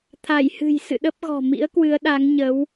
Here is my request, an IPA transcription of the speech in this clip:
t̪ʰ a˧˩ j h ɨ̤˨˩ j s ɨ̰˧˨ ɗ ə˦˥ p̚ ɣ ɔ̤˨˩ m ḭ˧˥ ə̯ k w ɨ˨˦ ə̯ ɗ a˨˦ ŋ ɲ ə˨˦ w

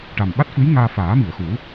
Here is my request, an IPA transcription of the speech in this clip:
ʈ a˨˩ m ɓ a˦˥ t̚ f ɨ˧˥ j ŋ aː˧ f aː˨˩˦ m i˨˩˨ ə̯ x u˨˩˦

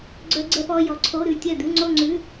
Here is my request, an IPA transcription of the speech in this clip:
ɡ͡ǀ œ˦˥ ɡ͡ǀ ɛ˦˥ p ɔ˧˥˧ j ɔ˨ ǀʰ o˧˥˧ ɾ ʉ˥˩ tʲ œ˥˩ d̪ ʉ˧˥˧ ŋ͡ǀ o˥˧ ŋ͡ǀ ʉ˧˥˧

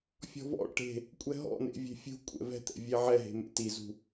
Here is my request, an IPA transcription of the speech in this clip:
fʲ ɔ̤ v ɔ̰ ʈ e̤ | kʷʼ ɛ ɦ ɔ̰ n̪ ḛ vʲ e̤ fʲ ṳ kʷʼ ɛ̰ v ɛ̤ t̪ ɛ̰ vʲ e ʕ ɛ ɦ e̤ m ḛ t i z ṳ

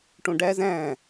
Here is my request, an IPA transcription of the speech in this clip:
ʈ õ ɖ æ z æ̃

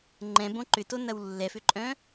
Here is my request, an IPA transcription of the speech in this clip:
ŋ͡ǃ ɛ̃ b õ ǃ ʏ t o n ɐ w lː ɛ f ʏ ǃʼ œ̃

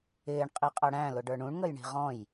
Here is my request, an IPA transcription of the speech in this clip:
ɪː ɳ qʼ i qʼ ʌ ɽ æ̃ l ʊ ɖ ə˞ ɳ ũ ɳ ŋ ə j ɳ i̤ ʁ ɔ̃ j

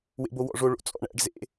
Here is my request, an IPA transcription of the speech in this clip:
w ḛ b o w ɔ̰ ʐ o ɭ o̰ t͡sʼ ɔ̰ ɳ æ̰ ɖ z ḛ

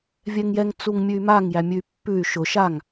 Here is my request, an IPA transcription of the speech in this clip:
vʲ ɛ ŋ j ɛ ŋ t͡s u ŋ mʲ ʉ y̯ m a ŋ j æ mʲ ʉ y̯ pː ʉ y̯ ʃ ʊ ʃ a ŋ

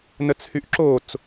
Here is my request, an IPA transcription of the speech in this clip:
n ə t͡s h y ʔ ǁ o t͡s

